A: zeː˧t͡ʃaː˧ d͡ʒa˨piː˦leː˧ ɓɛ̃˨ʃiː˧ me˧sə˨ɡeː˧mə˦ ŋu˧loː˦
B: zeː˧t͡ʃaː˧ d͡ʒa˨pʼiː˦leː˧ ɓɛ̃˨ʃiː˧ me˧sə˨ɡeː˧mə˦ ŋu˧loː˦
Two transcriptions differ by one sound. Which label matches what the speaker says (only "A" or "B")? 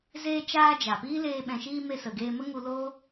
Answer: A